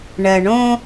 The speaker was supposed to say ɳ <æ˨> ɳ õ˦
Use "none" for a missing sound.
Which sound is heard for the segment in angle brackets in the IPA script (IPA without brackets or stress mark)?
ɜ˨